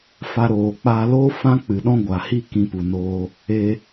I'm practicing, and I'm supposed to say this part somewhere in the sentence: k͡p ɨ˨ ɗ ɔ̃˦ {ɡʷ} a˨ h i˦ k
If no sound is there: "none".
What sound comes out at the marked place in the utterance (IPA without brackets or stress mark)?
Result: ɡʷ